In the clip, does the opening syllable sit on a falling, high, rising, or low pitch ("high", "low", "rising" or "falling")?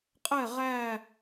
falling